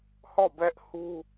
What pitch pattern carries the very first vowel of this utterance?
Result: falling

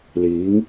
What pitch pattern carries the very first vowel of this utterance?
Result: rising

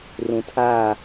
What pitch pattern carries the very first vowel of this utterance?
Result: low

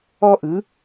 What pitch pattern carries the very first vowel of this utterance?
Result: high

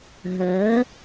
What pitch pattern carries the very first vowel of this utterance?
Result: rising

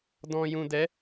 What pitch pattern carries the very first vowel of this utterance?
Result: low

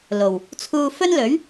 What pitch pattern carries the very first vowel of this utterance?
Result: low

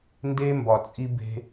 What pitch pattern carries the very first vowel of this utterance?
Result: high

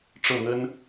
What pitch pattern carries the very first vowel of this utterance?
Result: falling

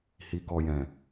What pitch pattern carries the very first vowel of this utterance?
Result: low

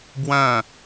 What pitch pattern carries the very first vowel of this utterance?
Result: falling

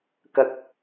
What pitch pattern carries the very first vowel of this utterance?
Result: low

